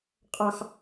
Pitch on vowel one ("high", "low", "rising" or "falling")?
high